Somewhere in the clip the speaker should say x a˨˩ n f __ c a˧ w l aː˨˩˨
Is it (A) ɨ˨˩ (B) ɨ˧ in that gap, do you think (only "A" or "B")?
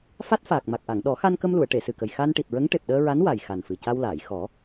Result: A